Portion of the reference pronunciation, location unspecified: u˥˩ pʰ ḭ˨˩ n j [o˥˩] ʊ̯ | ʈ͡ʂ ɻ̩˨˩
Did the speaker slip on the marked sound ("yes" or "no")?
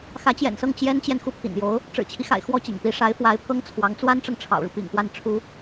yes